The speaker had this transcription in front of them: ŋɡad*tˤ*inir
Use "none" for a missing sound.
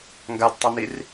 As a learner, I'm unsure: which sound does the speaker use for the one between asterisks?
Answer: tˤ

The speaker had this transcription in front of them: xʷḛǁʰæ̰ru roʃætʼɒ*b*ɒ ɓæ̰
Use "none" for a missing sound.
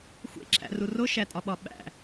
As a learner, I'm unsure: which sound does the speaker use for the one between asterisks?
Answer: ɓ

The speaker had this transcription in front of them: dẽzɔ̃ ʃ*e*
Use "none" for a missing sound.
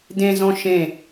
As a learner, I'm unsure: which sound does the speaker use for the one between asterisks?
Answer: ẽ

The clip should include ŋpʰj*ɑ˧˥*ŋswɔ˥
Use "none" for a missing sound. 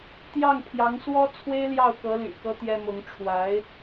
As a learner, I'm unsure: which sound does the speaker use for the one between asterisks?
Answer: ɑ˧˥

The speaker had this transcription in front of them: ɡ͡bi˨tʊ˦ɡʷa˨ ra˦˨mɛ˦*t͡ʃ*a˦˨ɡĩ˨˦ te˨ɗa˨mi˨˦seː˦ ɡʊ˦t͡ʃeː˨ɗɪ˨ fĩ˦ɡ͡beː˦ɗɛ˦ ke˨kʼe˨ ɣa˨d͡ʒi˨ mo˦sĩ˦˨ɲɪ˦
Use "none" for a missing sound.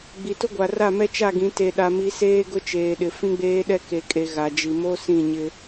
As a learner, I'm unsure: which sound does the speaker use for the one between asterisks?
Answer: t͡ʃ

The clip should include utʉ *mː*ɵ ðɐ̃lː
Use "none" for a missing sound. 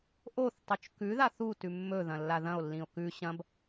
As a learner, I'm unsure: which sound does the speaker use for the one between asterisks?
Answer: mː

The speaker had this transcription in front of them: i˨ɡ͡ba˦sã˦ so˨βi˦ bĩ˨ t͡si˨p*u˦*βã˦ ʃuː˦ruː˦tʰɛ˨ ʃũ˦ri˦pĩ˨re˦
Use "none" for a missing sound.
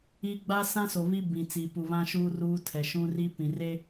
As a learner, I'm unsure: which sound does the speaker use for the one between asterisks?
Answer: u˨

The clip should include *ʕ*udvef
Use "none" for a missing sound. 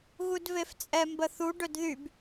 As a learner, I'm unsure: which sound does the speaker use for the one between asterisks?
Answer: ɣ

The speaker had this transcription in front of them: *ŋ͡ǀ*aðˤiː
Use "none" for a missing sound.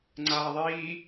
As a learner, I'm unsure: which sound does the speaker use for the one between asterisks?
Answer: ŋ͡ǀ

